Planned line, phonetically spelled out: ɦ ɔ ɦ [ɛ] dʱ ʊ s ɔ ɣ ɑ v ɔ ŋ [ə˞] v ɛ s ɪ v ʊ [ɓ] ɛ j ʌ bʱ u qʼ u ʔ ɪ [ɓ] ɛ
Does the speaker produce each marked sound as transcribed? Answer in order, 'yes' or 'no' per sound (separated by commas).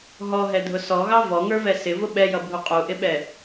yes, yes, yes, yes